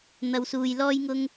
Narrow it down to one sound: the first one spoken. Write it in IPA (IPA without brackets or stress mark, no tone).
n̪